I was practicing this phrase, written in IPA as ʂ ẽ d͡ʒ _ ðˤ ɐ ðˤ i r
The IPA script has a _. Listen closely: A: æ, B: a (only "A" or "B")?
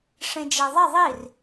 A